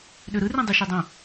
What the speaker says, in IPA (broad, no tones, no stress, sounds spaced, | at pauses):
ɗ ø ɾ ɯ r ĩ dˤ ø ʃ e dˤ õ